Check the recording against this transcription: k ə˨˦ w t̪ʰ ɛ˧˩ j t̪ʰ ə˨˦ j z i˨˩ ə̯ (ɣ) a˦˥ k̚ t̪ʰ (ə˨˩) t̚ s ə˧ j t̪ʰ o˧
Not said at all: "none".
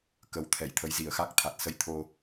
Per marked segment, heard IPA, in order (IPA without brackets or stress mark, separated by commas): x, a˨˩